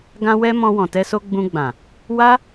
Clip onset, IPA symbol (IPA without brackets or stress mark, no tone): ɡ